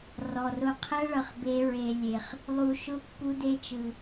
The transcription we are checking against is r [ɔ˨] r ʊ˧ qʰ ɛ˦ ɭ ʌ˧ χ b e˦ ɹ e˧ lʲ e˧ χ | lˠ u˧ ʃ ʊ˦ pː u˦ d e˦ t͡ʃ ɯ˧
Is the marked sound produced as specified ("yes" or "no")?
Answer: yes